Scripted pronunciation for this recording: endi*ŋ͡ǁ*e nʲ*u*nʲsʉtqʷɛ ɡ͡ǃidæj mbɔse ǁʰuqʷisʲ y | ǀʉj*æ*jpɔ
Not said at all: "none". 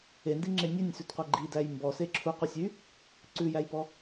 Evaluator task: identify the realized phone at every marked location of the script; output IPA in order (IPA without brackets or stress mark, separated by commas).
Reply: ŋ͡ǁ, ʉ, æ